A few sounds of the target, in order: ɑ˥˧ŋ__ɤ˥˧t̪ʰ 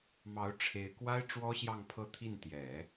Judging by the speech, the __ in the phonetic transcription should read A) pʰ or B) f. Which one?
A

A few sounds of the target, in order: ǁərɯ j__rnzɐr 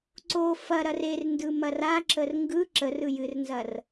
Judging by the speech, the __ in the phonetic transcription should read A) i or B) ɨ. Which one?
B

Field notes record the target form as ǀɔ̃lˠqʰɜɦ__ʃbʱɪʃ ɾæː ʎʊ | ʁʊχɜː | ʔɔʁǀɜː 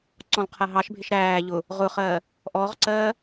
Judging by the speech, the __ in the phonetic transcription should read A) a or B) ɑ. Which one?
B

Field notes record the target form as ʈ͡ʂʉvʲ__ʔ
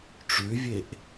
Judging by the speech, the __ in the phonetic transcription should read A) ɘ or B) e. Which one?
B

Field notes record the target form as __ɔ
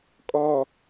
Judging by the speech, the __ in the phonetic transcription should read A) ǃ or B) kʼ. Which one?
B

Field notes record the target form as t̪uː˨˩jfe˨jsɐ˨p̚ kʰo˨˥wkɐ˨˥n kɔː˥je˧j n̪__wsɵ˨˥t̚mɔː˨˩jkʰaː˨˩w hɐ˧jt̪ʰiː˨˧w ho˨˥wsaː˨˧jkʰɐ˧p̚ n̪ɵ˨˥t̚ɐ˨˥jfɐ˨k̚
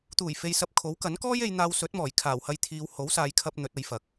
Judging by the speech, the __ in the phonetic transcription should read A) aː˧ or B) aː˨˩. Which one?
A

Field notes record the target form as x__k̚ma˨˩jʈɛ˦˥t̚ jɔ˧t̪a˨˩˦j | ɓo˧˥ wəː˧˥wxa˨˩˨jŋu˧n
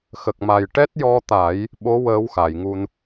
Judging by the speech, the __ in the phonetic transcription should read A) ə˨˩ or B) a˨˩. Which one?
A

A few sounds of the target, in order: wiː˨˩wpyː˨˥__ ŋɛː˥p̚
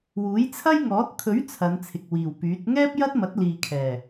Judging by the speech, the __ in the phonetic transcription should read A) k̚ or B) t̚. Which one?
B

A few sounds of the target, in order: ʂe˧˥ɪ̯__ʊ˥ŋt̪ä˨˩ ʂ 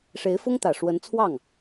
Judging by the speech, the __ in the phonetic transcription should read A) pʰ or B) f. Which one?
B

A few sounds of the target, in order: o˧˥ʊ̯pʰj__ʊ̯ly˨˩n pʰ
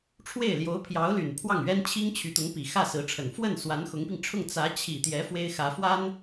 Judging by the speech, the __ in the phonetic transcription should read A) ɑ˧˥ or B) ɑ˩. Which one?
A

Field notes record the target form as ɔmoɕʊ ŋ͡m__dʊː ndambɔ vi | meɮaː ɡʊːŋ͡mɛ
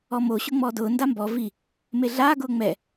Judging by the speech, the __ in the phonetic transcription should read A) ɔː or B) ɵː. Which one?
A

